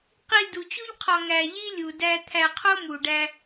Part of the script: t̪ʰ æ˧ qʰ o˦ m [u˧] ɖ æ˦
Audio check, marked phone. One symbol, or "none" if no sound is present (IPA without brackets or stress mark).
u˨